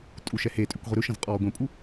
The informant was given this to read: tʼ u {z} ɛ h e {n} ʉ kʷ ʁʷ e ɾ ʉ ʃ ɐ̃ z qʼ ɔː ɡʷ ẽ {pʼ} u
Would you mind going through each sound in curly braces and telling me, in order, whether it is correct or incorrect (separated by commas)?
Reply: incorrect, incorrect, correct